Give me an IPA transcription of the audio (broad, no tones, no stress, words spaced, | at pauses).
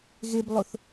ɣeblˠoθ